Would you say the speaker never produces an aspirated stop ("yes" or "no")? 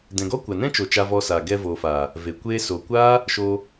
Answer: yes